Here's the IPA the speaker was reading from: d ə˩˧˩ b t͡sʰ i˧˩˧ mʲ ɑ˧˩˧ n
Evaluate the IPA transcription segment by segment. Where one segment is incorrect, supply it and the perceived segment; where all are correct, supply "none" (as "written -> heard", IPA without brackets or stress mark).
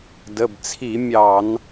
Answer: none